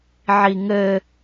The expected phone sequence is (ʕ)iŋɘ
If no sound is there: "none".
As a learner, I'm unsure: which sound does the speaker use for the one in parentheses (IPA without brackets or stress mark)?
ʕ